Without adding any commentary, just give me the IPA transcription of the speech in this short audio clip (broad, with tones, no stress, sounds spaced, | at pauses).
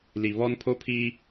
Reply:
l i˨ β ɔ˦ n pʰ o˦ pʰ iː˦